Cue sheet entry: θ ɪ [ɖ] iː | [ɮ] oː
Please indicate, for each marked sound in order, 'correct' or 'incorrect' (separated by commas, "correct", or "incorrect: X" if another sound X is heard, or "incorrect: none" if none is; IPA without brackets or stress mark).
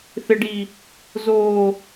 correct, incorrect: z